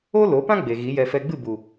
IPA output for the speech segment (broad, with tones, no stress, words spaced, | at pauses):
o˦lo˨˦pã˦ ɡ͡be˨ɣi˨˦jɛ˧ fɛ˧ɡ͡bɨ˦˨bu˨